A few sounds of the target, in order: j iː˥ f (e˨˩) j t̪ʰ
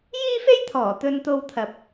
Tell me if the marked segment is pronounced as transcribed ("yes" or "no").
no